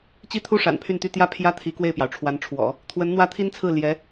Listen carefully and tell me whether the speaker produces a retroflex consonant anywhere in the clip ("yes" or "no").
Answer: yes